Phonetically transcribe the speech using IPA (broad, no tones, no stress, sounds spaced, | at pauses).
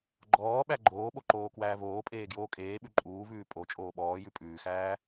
ɡ͡ǃ ɔː ɓ æ ɡ͡ǃ oː ɓ o ǃ oː k w æː v oː pʼ eː ɡ j oː kʼ eː ɓ ʉ ǃʼ uː v ʉː pʼ o t͡ʃʼ oː ɓ ɔː j ʉ pʼ ʉː x æː